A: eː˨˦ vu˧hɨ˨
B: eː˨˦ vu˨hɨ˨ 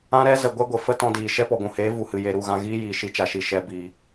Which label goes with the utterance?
B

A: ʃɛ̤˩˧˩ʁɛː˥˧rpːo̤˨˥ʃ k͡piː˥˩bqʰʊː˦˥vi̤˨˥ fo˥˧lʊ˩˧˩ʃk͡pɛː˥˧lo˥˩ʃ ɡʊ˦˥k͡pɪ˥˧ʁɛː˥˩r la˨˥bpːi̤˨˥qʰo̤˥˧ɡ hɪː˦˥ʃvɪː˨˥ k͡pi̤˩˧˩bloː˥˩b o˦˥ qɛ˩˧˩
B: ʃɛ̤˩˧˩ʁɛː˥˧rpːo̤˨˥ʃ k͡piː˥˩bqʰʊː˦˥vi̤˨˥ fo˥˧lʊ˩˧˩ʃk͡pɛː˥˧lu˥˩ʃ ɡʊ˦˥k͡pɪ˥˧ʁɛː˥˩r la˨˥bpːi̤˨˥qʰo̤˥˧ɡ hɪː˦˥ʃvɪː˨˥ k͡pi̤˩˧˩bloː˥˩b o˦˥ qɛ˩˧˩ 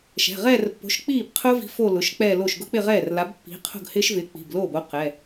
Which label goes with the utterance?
A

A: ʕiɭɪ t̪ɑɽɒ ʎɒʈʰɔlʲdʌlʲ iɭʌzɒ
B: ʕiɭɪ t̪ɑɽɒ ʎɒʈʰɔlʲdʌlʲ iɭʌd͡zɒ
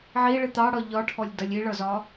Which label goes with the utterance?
A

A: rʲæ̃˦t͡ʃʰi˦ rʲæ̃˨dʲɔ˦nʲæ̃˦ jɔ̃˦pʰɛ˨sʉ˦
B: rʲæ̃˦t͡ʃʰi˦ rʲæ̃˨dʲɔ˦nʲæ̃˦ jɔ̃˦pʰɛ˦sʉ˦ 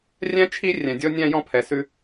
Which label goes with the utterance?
A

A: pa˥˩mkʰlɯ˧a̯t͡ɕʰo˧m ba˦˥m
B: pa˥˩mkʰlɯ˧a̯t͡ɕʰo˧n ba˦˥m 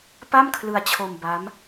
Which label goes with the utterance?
A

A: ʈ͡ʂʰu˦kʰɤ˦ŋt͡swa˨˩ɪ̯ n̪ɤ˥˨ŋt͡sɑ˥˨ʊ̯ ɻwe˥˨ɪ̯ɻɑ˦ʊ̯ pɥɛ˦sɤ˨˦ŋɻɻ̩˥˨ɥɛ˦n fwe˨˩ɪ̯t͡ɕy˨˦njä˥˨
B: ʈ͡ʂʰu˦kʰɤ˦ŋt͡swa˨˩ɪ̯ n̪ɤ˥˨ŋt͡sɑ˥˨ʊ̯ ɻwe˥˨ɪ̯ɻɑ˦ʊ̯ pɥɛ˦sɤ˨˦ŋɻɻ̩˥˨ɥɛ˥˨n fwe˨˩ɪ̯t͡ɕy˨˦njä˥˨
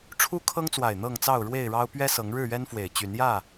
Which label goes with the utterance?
A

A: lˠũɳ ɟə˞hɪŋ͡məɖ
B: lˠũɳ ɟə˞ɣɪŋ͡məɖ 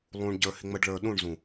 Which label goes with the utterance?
A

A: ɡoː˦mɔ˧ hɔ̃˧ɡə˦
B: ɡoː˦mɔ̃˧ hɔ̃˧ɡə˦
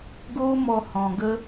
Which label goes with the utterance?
A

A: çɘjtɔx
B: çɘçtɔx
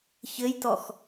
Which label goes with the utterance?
A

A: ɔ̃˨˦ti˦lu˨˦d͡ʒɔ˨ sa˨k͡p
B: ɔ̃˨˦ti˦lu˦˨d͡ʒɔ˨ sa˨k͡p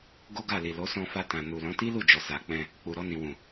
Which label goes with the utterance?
B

